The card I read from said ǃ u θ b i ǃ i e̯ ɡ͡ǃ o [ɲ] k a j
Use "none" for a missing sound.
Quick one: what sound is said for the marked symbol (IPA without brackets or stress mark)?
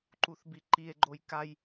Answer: j